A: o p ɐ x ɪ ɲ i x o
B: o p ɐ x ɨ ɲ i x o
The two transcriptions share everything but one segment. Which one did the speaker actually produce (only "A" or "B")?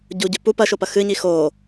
B